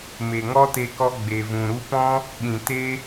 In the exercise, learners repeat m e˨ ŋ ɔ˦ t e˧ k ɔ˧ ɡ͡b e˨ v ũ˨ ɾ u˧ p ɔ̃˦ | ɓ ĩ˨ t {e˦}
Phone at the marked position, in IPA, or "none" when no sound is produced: e˦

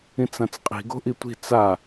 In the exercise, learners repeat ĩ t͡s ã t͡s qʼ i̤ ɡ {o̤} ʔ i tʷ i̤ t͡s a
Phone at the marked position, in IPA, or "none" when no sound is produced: o̤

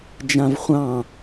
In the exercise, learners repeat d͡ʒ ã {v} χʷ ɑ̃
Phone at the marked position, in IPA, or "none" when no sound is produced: v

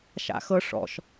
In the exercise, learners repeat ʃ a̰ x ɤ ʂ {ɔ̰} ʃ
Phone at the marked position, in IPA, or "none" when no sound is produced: ɔ̰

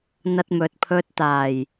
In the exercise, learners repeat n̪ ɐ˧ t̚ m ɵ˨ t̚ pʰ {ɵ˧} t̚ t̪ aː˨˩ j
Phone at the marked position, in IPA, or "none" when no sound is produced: ɵ˧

